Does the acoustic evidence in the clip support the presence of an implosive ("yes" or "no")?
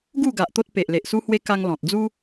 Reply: no